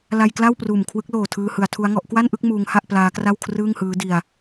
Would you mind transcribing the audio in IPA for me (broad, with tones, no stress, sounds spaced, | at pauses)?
l a˧ j k l a˥˩ w p r uː˨˩ m kʰ w ɯ˦˥ k̚ l oː˨˩ tʰ ɯː˧ h ɯ˩˦ a̯ tʰ u˦˥ a̯ ŋ ɔ˦˥ ʔ k w a˥˩ n ʔ ɯ˥˩ k̚ m uː˦˥ ŋ h a˥˩ ʔ p l aː˦˥ k r a˥˩ w kʰ r ɯː˥˩ ŋ h ɯː˦˥ d i˧ a̯